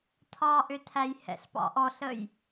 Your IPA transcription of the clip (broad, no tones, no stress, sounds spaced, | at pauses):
tʰ ɑ ʔ ʏ tʰ æ j h ɛ̰ ɬ p ɑ̰ ʔ ɔ ɬ ə j